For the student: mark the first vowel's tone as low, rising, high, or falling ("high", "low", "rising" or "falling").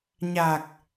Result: low